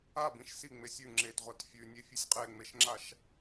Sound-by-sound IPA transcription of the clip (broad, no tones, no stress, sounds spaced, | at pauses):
a b ĩ ʃ s i ŋ͡m e sʲ ʉ ŋ͡ǁ e t ʁʷ a t fʲ ʉ nʲ e fʲ ʉ sʲ qʼ e ŋ͡m e ʃ ŋ͡ǁ a ʃ